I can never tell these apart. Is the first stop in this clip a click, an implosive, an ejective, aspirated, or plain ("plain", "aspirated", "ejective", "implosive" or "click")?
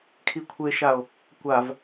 aspirated